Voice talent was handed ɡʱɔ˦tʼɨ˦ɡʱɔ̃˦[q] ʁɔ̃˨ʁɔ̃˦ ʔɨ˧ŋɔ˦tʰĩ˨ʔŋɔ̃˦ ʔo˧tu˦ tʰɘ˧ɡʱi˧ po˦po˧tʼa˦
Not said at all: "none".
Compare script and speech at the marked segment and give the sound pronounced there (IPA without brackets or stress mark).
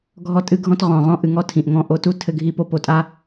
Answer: t